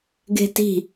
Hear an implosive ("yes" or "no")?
no